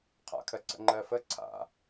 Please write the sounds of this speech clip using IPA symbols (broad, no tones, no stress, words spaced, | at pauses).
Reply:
qʰa̰kʰɜǀə̰ ŋ͡ǃɜfə ǀʰa̰